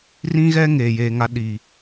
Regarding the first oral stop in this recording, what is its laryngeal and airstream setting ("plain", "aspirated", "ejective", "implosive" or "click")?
implosive